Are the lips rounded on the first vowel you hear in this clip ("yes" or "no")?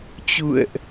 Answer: yes